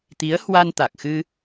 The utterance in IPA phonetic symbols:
t̪i˨˦ə̯hwa˧nt̪a˨˩k̚xɨ˧

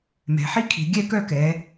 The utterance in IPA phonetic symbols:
mɛ̤˩˧ħi˥kʰi̤˩˧ ɡʲɛ˥˧kœ˥˧kɛ˩˧

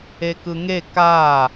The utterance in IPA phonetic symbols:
ekɯŋe ka

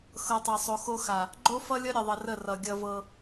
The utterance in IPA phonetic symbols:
xɤ˨tˤɤ˨sˤo˨xo˦ xa˨ | ɡ͡ǃo˦fʌ˦lʲʌ˦ ɾʲə˨ðˤə˨ rə˦˨rʌ˨ ɡʲʌ˦vɤ˦

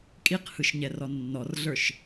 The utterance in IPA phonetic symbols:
kʼiqhɯʃɲɛrɔ nːɔrɮə˞ʃ

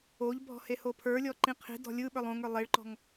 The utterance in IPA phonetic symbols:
oʎbʱɔ̤ hehopʰə˞lʲɔ ǃĩqʰi̤dɔ̤ lʲɯ ɓə˞lˠõŋə˞ lˠeɭǃɔ̤ŋ

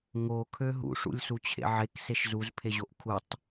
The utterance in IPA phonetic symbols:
ŋokʰø ɦṵʂṵlʲsut͡ɕʰḛ ʕekseʃ zuzpʰeʑoʔ kʰutˤ

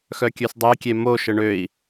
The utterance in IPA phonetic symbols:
xœkʲøsdˤekʲe moʃə ɳøi̯

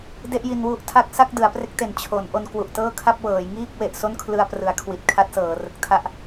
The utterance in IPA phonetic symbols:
de˥˩ʔji˧nwu˥˩ʔtʰa˥˩k̚ sa˥˩k̚dɯ˩˦a̯pre˦˥k̚te˨˩n t͡ɕʰo˩˦n ʔo˧nkwu˨˩ʔtɤː˥˩kʰa˥˩p̚ wɤː˩˦jŋiː˥˩k̚ we˨˩ʔso˥˩n kʰlɯ˧a̯prɯ˩˦a̯ kʰwi˨˩t̚ kʰa˦˥t̚sɤː˩˦rɯ˨˩k̚tʰa˥˩ʔ

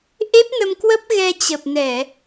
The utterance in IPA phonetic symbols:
ʔe˦˥p̚nə˧mkwə˦˥p̚ ɣɛ˧t͡ɕə˨˩p̚nɛ˧˩˨

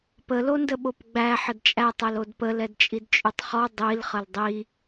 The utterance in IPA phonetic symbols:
pəlondəɓop ɡ͡bæ ħədt͡ʃʼætˤɛl odpəl ɛdt͡ʃʼidt͡ʃʼytˤχɔ dˤil χəldˤi

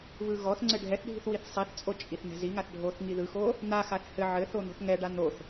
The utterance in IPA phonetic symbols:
βɯɣɔθŋ͡ǀɘ ɖʱɛθɖʱi̤θ wiθsˤiθt͡sʼo t͡ʃʼiθnɛ̤ziŋaθ ɖʱoθ ŋiðɯxo | n̪axaθ hɘ ʕɘθo n̪ɔ̤θŋɛɖa n̪oθ

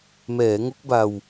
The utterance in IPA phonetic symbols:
mɛː˩˦ŋo˦˥k̚ba˧w

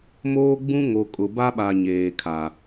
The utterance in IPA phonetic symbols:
moː˦ɡ͡bũ˦ ŋo˨kʼʊ˨ ba˦ɓa˨ɲeː˨ kʰa˨

